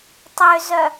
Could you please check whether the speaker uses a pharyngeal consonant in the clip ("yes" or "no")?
no